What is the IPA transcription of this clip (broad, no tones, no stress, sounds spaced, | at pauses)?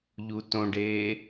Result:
ʎ u t õ ɖ eː